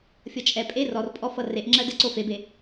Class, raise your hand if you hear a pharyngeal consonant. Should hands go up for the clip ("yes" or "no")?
no